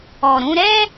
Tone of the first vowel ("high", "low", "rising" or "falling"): low